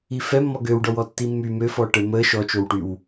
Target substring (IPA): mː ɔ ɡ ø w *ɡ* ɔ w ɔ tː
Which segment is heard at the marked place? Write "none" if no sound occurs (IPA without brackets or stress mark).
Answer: ɖ